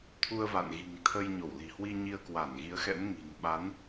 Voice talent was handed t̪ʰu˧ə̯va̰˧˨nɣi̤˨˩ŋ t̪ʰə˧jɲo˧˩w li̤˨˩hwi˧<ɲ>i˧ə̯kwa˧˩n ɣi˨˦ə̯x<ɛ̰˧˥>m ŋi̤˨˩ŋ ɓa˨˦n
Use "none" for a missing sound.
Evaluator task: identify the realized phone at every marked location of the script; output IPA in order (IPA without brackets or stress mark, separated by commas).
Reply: ɲ, ɛ̰˧˥